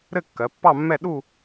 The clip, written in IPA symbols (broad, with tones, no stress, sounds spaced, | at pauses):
ɾ ɘ˥˧ kː ɜ˩˧ pː ɑ˥˧ mː ɛ˥˧ ɗ u˥˧